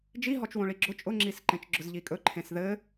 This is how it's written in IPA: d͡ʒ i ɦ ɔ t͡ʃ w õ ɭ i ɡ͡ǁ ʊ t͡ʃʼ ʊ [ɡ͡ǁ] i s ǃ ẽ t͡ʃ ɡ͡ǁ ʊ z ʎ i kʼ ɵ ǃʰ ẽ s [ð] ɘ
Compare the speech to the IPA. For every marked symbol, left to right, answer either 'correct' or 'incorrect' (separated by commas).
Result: incorrect, correct